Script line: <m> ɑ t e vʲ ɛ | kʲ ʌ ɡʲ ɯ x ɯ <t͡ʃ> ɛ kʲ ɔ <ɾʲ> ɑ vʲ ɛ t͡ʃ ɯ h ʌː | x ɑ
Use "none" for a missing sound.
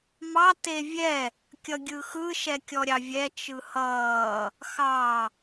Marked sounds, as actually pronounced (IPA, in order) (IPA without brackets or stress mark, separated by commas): m, ʃ, ɾʲ